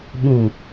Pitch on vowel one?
low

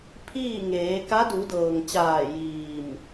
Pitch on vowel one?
falling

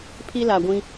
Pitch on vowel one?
high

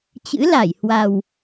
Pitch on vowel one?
rising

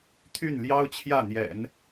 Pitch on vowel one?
falling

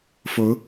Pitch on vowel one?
rising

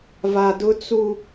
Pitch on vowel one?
low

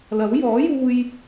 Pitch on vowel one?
rising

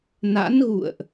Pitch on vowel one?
rising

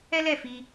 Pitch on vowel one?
high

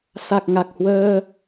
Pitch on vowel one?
low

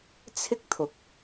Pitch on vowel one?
high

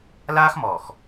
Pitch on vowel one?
high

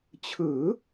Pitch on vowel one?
rising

